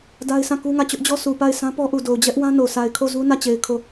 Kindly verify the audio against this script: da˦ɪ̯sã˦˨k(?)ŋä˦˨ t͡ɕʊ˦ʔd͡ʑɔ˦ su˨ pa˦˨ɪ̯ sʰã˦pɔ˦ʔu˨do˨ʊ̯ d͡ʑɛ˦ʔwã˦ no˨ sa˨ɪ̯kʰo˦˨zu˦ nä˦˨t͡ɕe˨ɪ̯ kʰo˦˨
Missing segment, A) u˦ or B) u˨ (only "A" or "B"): A